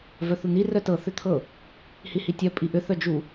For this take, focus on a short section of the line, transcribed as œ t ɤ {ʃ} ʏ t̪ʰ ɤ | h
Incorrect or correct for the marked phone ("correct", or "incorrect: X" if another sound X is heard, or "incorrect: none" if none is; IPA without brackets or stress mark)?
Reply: incorrect: θ